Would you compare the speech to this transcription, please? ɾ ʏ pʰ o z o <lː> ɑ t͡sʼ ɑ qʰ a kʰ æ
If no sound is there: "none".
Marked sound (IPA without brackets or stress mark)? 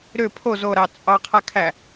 ɾ